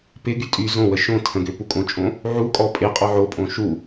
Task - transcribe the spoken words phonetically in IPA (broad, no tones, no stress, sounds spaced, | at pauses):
p ɪ ɡ y tʼ y z õ w ə ʃ õ tʰ ə̃ ɡ ø p u kʼ õ t͡ʃʼ õ | ʕ u kʼ ɔ pʼ ɪ qʼ ɔ ʕ o pʼ õ ʃ u